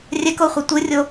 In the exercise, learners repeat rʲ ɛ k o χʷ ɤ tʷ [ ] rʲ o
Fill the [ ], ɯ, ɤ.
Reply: ɯ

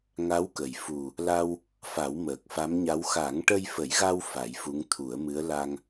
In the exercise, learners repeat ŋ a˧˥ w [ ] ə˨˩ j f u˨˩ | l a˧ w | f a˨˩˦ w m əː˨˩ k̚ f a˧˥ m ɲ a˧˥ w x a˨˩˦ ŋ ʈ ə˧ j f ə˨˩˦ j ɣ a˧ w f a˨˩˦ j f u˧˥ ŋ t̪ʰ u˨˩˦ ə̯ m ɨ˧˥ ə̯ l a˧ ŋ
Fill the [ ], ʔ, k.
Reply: k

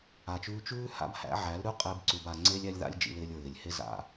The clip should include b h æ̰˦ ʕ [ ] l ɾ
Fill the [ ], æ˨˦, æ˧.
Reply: æ˨˦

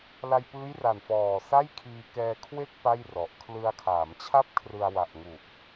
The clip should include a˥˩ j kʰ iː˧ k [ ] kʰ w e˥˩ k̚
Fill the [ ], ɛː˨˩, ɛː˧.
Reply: ɛː˧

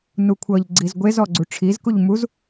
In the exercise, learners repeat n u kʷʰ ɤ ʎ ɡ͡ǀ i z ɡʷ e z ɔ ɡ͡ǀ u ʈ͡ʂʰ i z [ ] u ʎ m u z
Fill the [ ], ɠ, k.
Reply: k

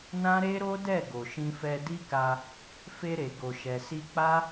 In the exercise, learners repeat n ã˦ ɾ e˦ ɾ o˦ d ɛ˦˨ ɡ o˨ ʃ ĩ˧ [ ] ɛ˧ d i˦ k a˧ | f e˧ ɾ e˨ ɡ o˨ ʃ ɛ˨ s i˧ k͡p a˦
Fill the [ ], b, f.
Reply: f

